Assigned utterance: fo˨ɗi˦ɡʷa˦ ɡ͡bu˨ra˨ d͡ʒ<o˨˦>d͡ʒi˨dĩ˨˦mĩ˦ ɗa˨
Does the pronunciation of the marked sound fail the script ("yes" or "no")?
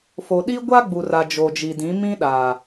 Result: yes